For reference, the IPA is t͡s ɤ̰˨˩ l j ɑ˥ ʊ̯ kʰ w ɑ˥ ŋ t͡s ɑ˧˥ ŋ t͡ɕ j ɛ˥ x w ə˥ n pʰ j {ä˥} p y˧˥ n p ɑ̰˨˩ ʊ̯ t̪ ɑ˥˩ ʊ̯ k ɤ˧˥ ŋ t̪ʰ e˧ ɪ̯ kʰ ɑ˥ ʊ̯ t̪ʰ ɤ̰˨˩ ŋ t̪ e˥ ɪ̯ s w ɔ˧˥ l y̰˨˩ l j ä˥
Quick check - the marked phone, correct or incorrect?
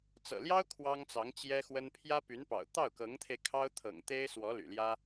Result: correct